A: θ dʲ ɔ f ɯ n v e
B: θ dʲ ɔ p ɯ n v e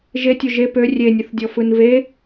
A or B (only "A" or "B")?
A